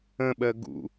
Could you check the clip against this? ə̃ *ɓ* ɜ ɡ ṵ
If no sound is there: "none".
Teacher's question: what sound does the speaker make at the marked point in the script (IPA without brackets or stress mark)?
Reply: ɓ